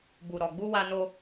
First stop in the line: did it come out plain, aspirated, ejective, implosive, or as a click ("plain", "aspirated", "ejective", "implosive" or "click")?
plain